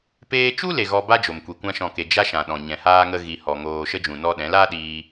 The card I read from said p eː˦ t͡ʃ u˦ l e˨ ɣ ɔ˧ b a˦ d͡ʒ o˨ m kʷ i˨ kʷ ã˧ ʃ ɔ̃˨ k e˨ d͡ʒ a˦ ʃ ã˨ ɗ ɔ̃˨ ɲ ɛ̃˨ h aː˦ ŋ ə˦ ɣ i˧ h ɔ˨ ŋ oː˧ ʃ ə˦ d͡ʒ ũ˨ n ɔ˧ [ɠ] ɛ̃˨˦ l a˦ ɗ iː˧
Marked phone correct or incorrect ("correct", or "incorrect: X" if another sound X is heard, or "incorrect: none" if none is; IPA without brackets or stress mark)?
incorrect: ɗ